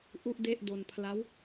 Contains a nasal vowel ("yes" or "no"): no